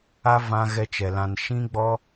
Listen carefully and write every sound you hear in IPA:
a˦vã˧ ɣɛ˦t͡ʃɛ˨lã˧n ʃĩ˦ɡ͡bɔ˦

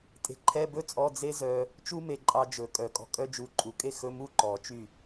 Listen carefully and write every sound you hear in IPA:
tʼe̤˧ǃʰɛ˧˥˧bɵ˥t͡sʼɔ˧˥˧ d͡ze˥zœ˧ | t͡ʃu˥me˧ǃʼɑ˧d͡ʒɵ˨˩˦ kʼœ˨˩˦kʼɔ̤˧kʼœ˥d͡ʒu˧ ǃʼu˨˩˦kʼe˥˩xɵ˧˥˧mu˥˩ ǃɔ˨˩˦t͡ʃy˥˩

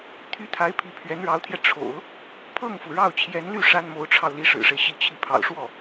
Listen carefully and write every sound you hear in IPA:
t̪ʰy˥t̪ʰa˧˥ɪ̯ pʰi˧˥pʰɥɛ˧˥nɻɑ˧˥ʊ̯t̪ʰjɛ˧ ʈ͡ʂʰo̰˨˩˦ʊ̯ | pʰɤ˥˩ŋfu˩ ɻɑ˥˩ʊ̯t͡ɕʰjɛ˧˥nly˥˩ ʂa˥nmo˧˥ʊ̯ʈ͡ʂʰɑ˧ʊ̯ li˧˥ʂɻ̩˨˩ʂe˦ɪ̯ ɕi˥˧t͡ɕʰi˥˩ pʰɑ̰˨˩ʊ̯ʂwɔ˥˩

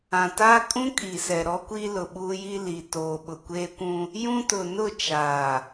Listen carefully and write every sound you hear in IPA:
ã˨taː˦kʼũ˦ kʼi˨sɛ˨ɾɔ˦ kʷiː˦lʊ˨ɓuː˦ji˦ li˨toː˨ ɓʊ˨kʷeː˦kʷũ˦ | jũ˦tʊ˨ nʊ˦˨t͡ʃaː˨

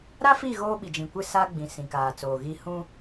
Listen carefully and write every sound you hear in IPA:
ɾa˦fi˦˨ ɣoː˦ɓi˨d͡ʒĩ˨ kʷɪ˦saː˦ɡ͡bĩ˨ sĩ˨kaː˨t͡soː˨ ɣi˦ hũ˦

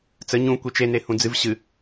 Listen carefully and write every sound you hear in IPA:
t͡sə ɲũ kʷit͡ʃe nehũd͡zɨv ɕɨ

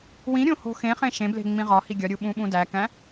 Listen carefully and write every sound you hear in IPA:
wĩɾʲõ ho̤xẽχẽ ʃẽble̤ ŋ͡mĩʁɒhi ɡʲɒɾʲu ɓũɓũdækæ̃

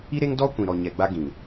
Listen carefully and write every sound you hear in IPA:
i˦ɾe˦ŋ dɔ˦ kʷĩ˨ɾɔ˨ɲɛ˨ɡ͡ba˦ ɡĩ˨

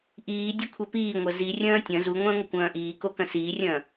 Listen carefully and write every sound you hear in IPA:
ʔiː dʲɐkʷʰɛpiːŋʷɐ zirʲɐ̃ː tʲɐ̃ zuŋʷɐ̃ː ŋʷəkʷɐ̃ːʔiːko kɐ̃siːrʲɐ̃ː

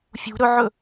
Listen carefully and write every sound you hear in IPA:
fʲṳ ɾɵʕɵ

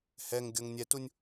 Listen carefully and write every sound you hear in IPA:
hɛŋ ɡʲɤŋnʲɛtunʲ

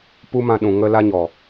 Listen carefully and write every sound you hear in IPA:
pu˦mã˧ɗũ˨ ŋə˦la˦ɲɔ˨

